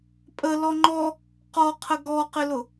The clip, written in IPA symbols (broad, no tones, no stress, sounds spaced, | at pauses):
pʼ ə l ɔ ŋ͡ǃ ɔ | q ɔ qʰ ə ɡ ɔ q ɪ l ʊ